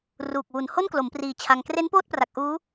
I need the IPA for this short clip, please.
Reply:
r uː˨˩ k̚ w u˨˩ n h o˥˩ n k l o˩˦ m p r iː˨˩ t͡ɕʰ a˧ ŋ k r e˦˥ n p oː˥˩ t̚ p r a˨˩ k̚ ʔ uː˦˥

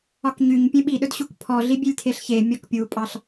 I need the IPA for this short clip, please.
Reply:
ɒ k ɲ y ɲ pʲ ẽ ɓ i ɗ ɵ d ɕ u k pʰ ɔ ɮ i bʲ e lʲ tʰ e ɬ ç e mʲ ɔ k pʲ u pʼ ɑ ɬ

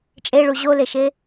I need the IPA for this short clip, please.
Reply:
t͡ʃʼ e ɭ u ʑ o l e ʃ e

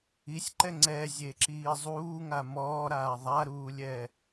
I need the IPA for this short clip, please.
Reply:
i sʲ ǃ ɛ ŋ͡ǀ ɛ zʲ e ǁ iː zˤ uː ŋ a m ɔː ɾ aː ðˤ a ɾ uː lʲ ɛ

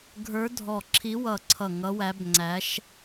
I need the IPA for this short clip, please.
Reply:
ɡʱ ə˞˧˥ dʱ ɔ˧˩ ǁʰ i˧˥ w ʌ˧˩ ǀʰ ʌ˧˩ ŋ ʌ˧˥ w æ˧˥ b ŋ͡ǀ æ˧˥ ʃ

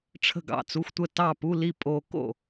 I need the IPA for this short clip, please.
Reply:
ʈ͡ʂʰ ə̤˥˩ ɡ ɑ̰˥˩ t͡s u˥˧ xʷ tʷ ə˥˩ t ɑ˥˩ p u˥˧ l i˥˩ pʼ o˥˧ k o̰˥˩

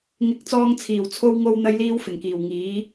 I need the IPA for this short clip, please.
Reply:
ŋ ɪ˨˥ k̚ t͡s ɔː˧ ŋ t͡sʰ iː˨˩ w t͡sʰ o˧ w ŋ o˧ w n̪ ɐ˧ j l iː˧ w f ɪ˨˩ ŋ k iː˨˩ w ŋ iː˨˥

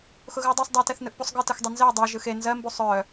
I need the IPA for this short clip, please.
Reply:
x ʊ ɣ ɯ u̯ dˤ ɜ sˤ dˤ ɜ t ɛ θ n ɯ ʔ p u sˤ ɡ ɯ t ɯ x dˤ ɛ n z ɛ u̯ dˤ ɜ ʒ ɯ x e n z ɜ m b u sˤ œ

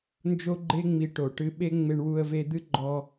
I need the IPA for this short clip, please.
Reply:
n d͡ʒ o˦ ɡ͡ǃ e˦ ŋ͡m i˧ ʈ o˨ ʈ ɨ˧ ɓ e˦ ŋ͡m e˧ ɳ w u˧ ə̯ v e˧ d̪ ɨ˦ ɡ͡ǃ ɔ˧

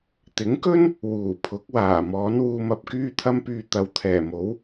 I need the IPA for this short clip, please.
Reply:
t̪ ɪ˨˥ ŋ k ɵ˥ n | w uː˨˩ pʰ ʊ˨˥ k̚ w aː˨˩ m ɔː˨˥ n w uː˧ m ɐ˨˥ p̚ k yː˥ t̪ʰ ɐ˥ m p yː˧ t̪ ɐ˨˧ w t̪ʰ ɛː˨˩ m o˨˥ w

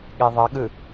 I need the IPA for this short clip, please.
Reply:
ɠ e ðˤ ʌ ɠ ɯ

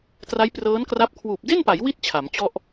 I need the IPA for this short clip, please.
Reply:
t r a˦˥ j p r ɤː˦˥ n k r a˦˥ p̚ kʰ w uː˨˩ p̚ d e˥˩ n p a˩˦ j w i˦˥ t̚ t͡ɕʰ a˩˦ m t͡ɕ ɔ˥˩ ʔ

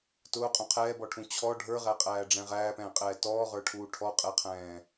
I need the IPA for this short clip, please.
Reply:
t ʊː qʼ ũ qʰ ɛː b ɔ ʈʰ ũ t͡ɕʰ ɔ ɖʱ ə˞ ʁ æ qʼ æː ɖ͡ʐ ɛ̃ ʁ æː p ɛ̃ː qʼ ɛː t ɔː ʁ ə˞ ʈʰ uː ʈʰ ɔ qʼ ɛ qʰ ɛ̃ː

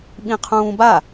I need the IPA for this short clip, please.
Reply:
ɓ ĩ qʰ ũː b a

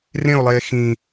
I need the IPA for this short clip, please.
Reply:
r ẽ o̯ lˠ eː x ĩ

